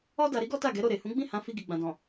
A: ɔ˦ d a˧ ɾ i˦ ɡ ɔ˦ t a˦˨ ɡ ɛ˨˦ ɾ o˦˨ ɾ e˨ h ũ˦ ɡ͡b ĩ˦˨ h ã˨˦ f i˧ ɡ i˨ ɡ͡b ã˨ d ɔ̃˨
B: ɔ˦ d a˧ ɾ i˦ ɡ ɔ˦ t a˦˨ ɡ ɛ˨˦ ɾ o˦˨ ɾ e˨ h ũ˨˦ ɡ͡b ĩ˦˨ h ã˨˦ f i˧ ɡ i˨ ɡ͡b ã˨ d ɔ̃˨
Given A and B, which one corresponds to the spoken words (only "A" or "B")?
B